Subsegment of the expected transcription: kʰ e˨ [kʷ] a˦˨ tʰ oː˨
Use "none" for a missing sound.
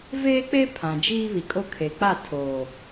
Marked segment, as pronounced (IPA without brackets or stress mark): k͡p